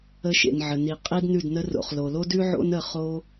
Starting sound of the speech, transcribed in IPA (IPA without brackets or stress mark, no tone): ə